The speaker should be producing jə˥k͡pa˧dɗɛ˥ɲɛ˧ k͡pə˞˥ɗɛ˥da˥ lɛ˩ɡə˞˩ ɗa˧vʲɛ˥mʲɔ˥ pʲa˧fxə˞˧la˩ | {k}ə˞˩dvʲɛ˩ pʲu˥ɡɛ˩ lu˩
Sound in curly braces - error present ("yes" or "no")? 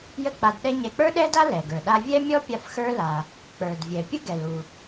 yes